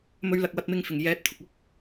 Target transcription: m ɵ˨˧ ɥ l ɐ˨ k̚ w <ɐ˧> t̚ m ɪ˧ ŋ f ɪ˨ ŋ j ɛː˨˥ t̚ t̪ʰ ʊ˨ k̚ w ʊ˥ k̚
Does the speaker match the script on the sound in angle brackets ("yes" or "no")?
yes